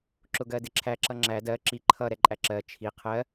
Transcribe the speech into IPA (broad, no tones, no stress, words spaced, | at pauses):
ǁʊɡɜdɪǁʰæ ǁʌŋ͡ǁæ dɜ ǁi ǃʰʌ ɾɛǃʼæǁɜ t͡ʃʰi qʰɜ